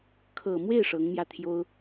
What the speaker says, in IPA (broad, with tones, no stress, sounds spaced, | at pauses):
kʰ ɤ˨˩ m w e˥˩ ɪ̯ ʂ ɤ˧˥ ŋ m j ä˥˩ t̪ʰ j o˥ ʊ̯